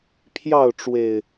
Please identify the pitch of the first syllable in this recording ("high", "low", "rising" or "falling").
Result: falling